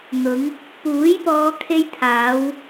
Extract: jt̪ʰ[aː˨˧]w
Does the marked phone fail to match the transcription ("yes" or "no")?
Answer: no